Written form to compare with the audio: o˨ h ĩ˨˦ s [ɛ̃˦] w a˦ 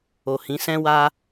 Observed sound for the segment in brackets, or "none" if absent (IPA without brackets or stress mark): ɛ̃˦